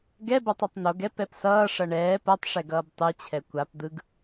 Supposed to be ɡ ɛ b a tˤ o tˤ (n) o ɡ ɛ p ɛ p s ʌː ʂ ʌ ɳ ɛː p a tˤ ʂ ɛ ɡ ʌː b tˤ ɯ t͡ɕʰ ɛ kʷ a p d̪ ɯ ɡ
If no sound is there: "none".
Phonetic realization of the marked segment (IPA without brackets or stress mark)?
n